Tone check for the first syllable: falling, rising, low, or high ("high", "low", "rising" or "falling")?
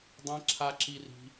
high